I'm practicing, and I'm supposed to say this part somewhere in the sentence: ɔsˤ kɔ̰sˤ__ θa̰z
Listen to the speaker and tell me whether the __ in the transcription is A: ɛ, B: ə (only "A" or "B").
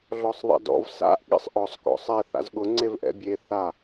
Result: A